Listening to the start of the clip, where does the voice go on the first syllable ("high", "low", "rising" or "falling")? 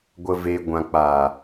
low